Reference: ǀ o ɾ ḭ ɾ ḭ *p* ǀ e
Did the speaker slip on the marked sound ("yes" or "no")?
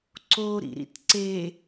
yes